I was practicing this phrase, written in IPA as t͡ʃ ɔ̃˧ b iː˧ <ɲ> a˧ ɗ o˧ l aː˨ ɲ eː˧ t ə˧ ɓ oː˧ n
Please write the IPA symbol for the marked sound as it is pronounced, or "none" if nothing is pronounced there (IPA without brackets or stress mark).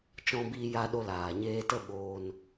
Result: j